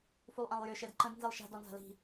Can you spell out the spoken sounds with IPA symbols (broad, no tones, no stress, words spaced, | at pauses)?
fulˠʔãlˠjʏ ʃɛdǃə̃d nzilˠʃa̤ dɔnza̤li̤